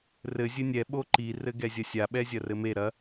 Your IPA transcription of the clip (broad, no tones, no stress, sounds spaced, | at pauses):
r ɘ zʲ ɘ nʲ ɛ ɓ o ǃ i r ɘ ɡ ɛ zʲ ɐ sʲ a ɓ ɛ zʲ ɐ r ɘ m e ɾ ɐ